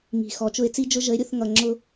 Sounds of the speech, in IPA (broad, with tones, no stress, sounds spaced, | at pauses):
ŋ i̤˨ x ɔ˨ t͡ʃ ʊ˦ ɪ̯ t͡s i˦ d͡ʒ ʊ˦ ʒ ə˨˦ ɪ̯ ɾʲ ʊ˦˨ θ ŋ ʌ˨ ŋ͡ǁ ʊ˦